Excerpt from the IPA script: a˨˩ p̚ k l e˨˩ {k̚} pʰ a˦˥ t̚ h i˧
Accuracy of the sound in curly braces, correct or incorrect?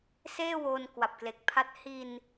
correct